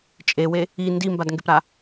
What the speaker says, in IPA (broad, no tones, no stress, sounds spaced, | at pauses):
t͡ʃʼ e w e | i n d i m b a d ŋ ɡ e p ɾ a